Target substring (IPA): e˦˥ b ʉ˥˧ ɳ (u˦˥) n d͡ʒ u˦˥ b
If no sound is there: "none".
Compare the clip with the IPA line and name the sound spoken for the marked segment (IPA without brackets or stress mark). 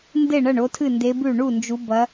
u˥˧